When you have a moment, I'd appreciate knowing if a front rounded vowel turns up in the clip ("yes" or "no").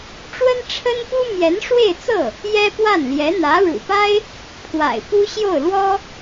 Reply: no